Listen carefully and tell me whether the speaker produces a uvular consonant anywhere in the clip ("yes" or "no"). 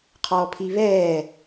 yes